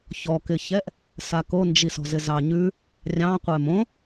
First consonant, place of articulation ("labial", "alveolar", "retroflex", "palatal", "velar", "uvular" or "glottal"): palatal